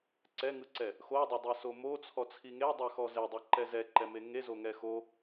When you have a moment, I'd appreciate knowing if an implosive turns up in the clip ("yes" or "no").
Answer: no